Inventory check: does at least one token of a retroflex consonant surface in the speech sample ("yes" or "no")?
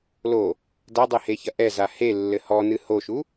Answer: no